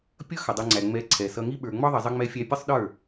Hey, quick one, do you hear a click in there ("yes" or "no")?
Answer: yes